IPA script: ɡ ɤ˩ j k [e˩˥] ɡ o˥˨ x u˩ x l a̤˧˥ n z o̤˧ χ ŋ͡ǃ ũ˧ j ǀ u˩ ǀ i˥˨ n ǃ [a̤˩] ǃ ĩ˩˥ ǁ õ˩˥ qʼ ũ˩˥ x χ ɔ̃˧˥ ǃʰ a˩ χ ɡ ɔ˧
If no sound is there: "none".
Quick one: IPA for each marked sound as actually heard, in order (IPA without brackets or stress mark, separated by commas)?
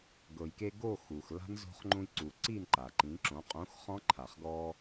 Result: e˧, a˩